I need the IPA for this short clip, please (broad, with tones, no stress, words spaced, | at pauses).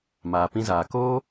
maː˨pĩ˧zaː˨ koː˦